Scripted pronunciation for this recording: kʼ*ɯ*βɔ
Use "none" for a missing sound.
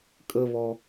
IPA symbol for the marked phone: ə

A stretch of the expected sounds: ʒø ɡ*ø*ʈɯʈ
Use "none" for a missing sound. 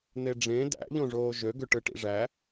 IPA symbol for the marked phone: ø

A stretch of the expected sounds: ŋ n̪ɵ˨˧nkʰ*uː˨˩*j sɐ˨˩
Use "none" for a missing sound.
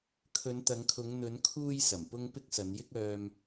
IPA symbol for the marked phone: uː˧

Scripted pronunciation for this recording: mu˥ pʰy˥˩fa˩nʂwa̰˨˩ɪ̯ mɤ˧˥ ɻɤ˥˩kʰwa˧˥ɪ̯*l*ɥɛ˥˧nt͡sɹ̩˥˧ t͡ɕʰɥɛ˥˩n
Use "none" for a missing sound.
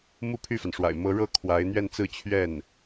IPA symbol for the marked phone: n̪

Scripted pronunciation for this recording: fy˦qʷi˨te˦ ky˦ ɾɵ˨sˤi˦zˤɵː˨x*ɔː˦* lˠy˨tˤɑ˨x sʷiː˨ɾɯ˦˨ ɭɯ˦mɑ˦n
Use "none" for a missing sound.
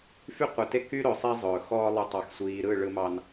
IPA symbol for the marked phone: ɔː˦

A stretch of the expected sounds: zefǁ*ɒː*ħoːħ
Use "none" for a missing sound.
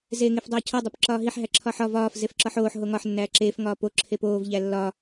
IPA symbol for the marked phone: ɒ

